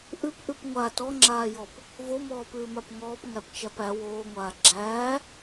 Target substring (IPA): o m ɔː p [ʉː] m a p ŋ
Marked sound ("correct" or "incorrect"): correct